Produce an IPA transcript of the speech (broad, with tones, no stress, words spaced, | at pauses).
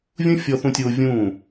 vʲũ˦fʲɔ˧θũ˧tʲoː˧ vʲũː˦˨